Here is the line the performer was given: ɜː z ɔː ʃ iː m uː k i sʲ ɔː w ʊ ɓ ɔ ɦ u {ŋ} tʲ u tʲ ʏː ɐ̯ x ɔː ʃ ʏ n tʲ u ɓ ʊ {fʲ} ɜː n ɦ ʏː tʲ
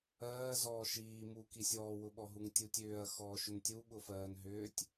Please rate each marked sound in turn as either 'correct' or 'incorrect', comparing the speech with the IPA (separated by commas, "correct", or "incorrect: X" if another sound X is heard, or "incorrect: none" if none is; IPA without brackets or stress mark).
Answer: correct, incorrect: f